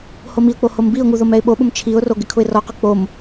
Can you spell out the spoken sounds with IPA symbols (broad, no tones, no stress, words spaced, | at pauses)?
homiʊ̯k͡po hombiʊ̯ŋu ðomɛɪ̯ɓoɓʊm t͡ʃʰiʊ̯ro ɡɪkʰʊɪ̯rɔqʊ k͡pom